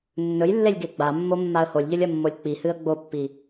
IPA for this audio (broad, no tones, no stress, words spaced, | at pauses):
nːɵjlːelʲ ɡeɡ͡bamːo mːaə̯holʲʎɵlʲɐ mːolʲk͡pihɨə̯ ɡ͡bopːi